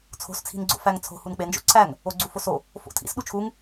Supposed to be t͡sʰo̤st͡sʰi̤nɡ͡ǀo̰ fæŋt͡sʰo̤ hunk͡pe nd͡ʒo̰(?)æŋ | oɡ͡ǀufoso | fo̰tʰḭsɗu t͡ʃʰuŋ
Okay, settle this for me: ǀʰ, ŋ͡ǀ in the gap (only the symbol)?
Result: ǀʰ